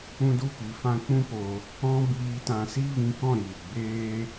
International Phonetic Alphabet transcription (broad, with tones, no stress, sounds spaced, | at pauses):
ũ˦ d u˦ p i˨˦ f ã˦ k͡p ũ˦ p o˧ | ɔ̃˦ b iː˧ t ã˧ s i˦ v ĩ˧ k ɔ̃˦˨ ɾ iː˨ ɡ͡b eː˦